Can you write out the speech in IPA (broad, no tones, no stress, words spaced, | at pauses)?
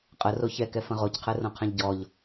qʼəro çɛkɛfə̃ ʁocqʰɛrõqʰɛ̃ʎ ɟɔʎ